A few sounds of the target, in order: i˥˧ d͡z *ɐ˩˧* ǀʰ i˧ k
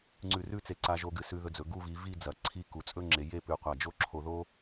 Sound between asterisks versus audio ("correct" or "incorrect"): correct